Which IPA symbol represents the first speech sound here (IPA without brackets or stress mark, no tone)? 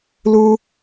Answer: l